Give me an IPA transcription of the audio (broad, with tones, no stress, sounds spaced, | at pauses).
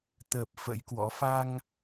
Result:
t̪ ə˨˩ p̚ f ə̰˧˥ j k w ɔ̰˧˥ f a˧ ŋ